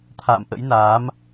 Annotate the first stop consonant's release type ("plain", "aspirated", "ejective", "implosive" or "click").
aspirated